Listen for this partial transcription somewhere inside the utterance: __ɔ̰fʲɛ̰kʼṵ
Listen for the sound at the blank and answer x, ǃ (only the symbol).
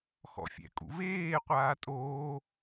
x